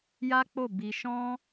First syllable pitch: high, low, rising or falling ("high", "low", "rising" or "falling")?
high